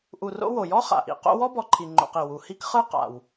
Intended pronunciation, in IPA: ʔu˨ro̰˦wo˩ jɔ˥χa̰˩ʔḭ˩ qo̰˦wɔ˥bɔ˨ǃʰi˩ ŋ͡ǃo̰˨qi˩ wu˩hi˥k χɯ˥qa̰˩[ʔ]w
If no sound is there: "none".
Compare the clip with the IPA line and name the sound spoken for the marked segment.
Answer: none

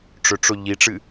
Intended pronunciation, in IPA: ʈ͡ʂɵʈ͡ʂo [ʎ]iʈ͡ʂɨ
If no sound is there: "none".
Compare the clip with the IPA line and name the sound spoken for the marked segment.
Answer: ʎ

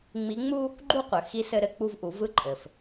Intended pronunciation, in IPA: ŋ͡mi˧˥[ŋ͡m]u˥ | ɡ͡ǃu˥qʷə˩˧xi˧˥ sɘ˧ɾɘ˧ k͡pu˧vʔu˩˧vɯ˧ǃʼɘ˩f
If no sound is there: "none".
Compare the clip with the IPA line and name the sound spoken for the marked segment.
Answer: ŋ͡m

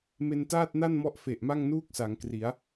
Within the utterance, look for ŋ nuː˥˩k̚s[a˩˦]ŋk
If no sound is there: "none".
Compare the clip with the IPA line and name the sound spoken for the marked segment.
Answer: a˩˦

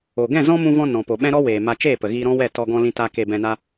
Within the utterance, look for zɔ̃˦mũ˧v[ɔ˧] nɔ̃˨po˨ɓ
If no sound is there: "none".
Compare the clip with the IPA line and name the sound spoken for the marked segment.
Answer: ɔ̃˧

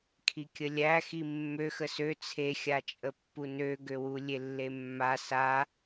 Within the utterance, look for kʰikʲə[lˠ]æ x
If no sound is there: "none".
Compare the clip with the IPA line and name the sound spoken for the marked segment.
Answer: lʲ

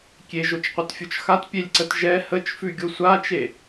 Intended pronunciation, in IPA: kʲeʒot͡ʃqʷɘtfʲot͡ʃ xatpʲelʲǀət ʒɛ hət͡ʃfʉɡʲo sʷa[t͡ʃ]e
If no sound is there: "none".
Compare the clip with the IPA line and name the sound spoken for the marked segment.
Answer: t͡ʃ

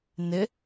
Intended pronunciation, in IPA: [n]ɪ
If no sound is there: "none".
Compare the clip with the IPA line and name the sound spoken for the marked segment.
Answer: n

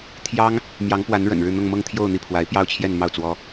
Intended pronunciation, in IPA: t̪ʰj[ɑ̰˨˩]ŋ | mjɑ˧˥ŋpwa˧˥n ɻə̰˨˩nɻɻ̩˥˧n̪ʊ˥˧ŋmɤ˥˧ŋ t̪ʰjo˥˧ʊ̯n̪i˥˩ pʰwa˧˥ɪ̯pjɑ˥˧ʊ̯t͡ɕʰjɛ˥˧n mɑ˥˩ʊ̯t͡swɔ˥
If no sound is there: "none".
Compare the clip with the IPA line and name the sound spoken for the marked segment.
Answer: ɑ˥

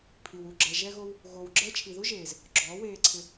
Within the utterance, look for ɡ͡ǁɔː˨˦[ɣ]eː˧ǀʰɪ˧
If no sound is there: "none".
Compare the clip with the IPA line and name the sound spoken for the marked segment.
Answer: w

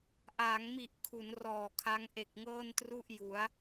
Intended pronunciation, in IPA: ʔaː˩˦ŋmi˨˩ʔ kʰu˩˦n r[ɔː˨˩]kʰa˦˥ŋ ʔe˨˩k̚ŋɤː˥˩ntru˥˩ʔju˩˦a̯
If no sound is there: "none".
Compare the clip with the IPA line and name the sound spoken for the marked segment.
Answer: ɔː˨˩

